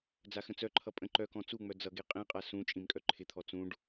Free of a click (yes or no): no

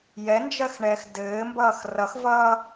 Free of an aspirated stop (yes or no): yes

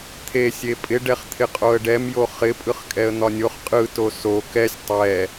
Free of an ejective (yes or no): no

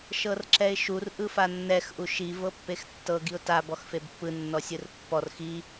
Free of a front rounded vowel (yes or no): yes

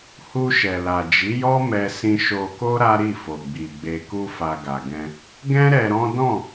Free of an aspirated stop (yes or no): yes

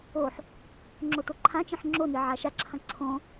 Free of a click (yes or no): no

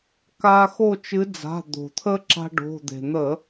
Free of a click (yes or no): no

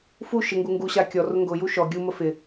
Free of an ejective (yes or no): yes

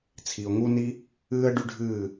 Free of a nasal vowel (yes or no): yes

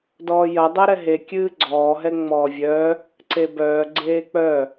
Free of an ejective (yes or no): yes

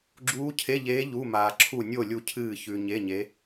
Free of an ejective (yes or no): yes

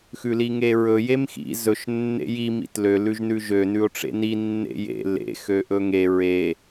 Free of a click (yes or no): yes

